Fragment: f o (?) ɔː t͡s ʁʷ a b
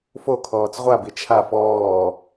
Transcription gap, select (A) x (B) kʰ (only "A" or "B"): B